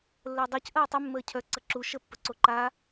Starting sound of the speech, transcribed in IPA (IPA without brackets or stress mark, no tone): lː